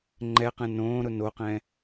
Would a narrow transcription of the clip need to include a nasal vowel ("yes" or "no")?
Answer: yes